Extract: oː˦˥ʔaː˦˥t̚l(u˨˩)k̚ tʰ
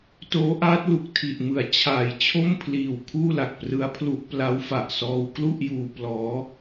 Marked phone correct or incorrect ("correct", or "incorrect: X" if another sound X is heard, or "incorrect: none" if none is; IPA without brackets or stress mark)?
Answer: correct